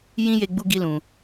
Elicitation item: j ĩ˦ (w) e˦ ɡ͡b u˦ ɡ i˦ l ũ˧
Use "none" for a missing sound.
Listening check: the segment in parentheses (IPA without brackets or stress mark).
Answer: j